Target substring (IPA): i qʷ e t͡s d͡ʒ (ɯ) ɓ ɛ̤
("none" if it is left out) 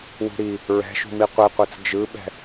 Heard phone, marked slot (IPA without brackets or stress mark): ɯ